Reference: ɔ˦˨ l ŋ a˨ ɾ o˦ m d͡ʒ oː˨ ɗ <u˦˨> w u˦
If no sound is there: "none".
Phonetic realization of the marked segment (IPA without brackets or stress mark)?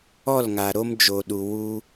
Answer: u˨